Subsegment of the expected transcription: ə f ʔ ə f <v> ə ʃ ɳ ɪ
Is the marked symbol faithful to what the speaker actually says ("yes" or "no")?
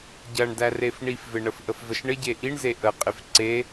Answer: yes